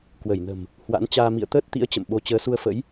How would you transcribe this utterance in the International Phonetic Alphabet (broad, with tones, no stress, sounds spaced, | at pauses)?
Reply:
k w ə˧˩ j n ə̤˨˩ m | h w a̰˧˥ n t͡ɕ aː˧ m ḭ˧˨ ə̯ t̪ əː˦˥ t̚ t̪ ḭ˧˥ ə̯ t͡ɕ ə̰˧˨ m ɓ o˧ t͡ɕ əː˨˦ s u˧ ə̯ f ə̰˧˥ j